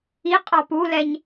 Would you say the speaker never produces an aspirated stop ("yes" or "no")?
yes